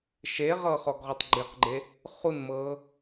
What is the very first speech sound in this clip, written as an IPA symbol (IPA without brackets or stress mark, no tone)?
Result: ʃ